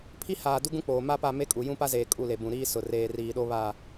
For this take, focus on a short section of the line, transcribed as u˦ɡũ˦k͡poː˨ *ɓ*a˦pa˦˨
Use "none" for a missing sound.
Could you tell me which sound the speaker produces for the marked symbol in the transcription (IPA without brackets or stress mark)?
m